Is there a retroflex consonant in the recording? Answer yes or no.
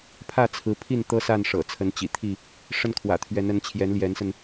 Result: yes